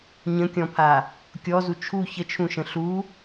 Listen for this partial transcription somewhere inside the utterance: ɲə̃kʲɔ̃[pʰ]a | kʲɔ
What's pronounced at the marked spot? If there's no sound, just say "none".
pʰ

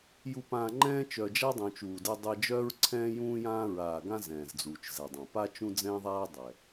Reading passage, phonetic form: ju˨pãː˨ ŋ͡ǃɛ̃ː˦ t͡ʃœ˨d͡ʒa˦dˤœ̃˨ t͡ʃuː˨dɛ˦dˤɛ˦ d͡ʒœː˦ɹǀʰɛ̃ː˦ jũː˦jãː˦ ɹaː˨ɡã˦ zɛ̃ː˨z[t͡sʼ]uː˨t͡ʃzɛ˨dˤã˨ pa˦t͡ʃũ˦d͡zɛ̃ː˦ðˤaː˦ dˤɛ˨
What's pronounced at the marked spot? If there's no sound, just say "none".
d͡z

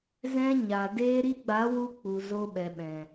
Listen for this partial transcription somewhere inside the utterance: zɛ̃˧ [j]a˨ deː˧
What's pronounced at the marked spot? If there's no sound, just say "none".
ɲ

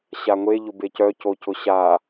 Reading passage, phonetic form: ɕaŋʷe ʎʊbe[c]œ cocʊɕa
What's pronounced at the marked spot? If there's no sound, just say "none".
c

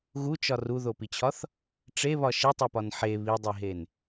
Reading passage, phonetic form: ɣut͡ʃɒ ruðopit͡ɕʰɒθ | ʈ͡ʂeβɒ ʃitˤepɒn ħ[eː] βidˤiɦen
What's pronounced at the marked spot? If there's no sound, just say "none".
e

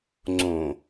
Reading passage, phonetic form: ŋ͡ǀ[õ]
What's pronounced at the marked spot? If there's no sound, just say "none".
õ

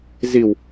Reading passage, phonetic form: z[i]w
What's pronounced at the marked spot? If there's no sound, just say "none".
i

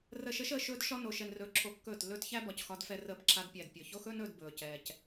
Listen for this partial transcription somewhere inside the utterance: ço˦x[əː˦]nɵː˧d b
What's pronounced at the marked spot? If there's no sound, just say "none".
ɵː˦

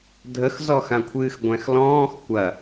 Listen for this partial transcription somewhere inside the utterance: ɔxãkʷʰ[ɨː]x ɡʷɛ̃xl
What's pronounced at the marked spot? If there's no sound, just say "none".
ɨː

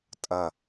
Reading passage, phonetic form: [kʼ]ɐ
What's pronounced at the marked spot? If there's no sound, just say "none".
tʼ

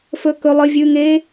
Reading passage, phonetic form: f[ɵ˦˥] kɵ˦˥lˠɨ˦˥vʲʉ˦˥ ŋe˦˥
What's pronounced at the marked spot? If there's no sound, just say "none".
ɵ˦˥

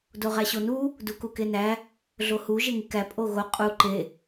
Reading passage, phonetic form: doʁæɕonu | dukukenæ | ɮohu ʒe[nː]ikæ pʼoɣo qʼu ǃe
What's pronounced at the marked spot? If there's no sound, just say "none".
ŋ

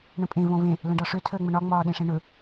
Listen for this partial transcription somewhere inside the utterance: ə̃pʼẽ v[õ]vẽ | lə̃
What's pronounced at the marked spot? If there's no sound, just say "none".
õ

